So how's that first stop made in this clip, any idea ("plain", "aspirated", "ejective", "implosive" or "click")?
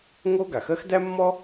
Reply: plain